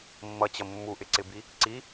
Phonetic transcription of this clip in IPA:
mː ʌ t͡ɕ ʌ mː u ʔ ɪ ǀ ɪ b i | ǀ i

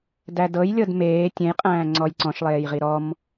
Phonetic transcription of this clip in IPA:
d æ d ɤ j lʲ ɤ d m eː tʲ ẽ j qʼ æ̃ː ŋ͡ǀ ɔ j ǀ ɔ̃ ʃ lˠ eː j ʁ i ɾ ɔ m

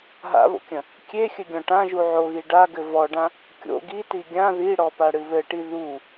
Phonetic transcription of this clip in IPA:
ɦ a̰ β o̰ kʲ ɐ̃ | kʲ e xʲ ɘ ɡʲ ɔ̃ ʈ ã ʒ u ʕ o ɣ i ɖ a ɡ ɘ v ɔ ɖ ã | kʲ o̰ ɡ i t i ɡʲ ã ð i ɽ ɔ p a ɽ ɨ β ɘ ʈ i ð u

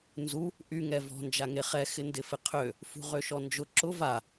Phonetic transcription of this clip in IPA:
n z u | ʔ y ŋ ɛ v ɔ̤ n d͡ʒ a ŋ e χ ɛ x ɪ n d ɪ f ɪ qʰ ø | f ṳ ʁ ø ʃ ɔ n d͡ʒ ʊ ǁ ʊ v a

